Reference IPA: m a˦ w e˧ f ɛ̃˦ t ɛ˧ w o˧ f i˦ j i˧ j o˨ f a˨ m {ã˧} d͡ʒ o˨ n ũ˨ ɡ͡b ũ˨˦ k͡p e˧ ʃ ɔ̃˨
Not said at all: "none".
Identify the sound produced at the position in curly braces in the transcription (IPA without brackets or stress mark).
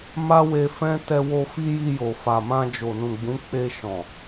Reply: ã˧